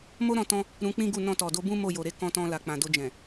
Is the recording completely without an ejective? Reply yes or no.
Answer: yes